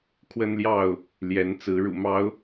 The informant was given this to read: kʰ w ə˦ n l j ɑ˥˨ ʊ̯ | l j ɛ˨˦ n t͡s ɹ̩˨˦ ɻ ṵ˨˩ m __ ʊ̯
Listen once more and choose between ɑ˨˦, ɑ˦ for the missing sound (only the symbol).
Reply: ɑ˨˦